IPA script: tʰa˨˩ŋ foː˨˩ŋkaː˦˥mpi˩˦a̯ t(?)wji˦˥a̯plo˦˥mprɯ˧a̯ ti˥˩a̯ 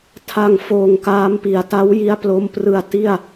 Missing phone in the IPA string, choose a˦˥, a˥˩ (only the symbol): a˦˥